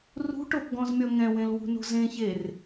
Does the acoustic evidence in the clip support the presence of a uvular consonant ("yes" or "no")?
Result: no